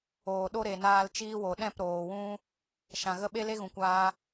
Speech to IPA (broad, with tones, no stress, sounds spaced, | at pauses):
oː˨ ɗ o˦ ɾ e˨ n aː˧ l t͡ʃ iː˦ w o˨ ɗ ɛ̃˦˨ p ɾ oː˨ w ũ˦ | ʃ ã˨ ɣ ə˦ ɓ e˦ l e˦ ɣ ũ˨ kʷ aː˧